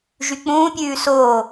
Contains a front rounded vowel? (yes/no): yes